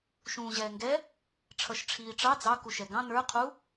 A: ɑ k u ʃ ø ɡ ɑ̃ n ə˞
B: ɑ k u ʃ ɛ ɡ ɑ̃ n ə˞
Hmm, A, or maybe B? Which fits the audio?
B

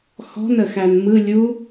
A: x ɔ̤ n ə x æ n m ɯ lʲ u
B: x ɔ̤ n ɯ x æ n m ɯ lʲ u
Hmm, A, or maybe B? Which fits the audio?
A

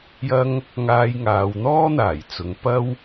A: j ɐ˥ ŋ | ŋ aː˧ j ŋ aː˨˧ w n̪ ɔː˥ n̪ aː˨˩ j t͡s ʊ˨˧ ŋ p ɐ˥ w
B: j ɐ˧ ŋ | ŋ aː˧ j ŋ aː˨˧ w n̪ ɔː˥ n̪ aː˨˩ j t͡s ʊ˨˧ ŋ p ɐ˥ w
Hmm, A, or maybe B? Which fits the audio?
A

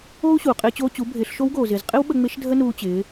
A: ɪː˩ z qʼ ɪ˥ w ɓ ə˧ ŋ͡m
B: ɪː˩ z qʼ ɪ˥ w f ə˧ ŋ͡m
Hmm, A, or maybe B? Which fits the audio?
A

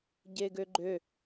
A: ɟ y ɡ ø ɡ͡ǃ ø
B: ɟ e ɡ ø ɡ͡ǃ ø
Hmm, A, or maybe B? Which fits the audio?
B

